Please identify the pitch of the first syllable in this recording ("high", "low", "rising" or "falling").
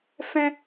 high